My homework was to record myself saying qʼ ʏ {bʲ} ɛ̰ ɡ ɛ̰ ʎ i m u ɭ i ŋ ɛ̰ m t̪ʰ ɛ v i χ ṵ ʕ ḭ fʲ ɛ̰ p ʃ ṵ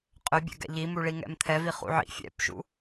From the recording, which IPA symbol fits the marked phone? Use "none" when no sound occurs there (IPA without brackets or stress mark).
bʲ